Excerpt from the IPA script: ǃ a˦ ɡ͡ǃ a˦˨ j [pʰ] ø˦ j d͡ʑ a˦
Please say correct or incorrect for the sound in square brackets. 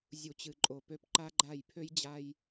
correct